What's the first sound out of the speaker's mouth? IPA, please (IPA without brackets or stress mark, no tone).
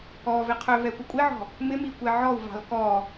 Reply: ɔ